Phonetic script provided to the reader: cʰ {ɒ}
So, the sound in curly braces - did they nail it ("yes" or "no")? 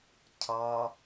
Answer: yes